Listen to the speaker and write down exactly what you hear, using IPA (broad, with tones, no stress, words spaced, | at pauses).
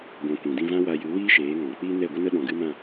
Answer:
ɡʷã˨ kʷĩ˨dĩ˧vã˦ wa˧jɨ˨˦wiː˦ʃeː˨˦ ŋɔ̃˨k͡pi˦ nɛ˦˨ɡʷə˦nə˦ ɗɔ̃˧ɡɨ˦mã˦˨